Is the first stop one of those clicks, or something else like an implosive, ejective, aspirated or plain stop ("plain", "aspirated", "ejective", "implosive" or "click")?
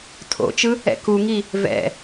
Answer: aspirated